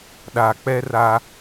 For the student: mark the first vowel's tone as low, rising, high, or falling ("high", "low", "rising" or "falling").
low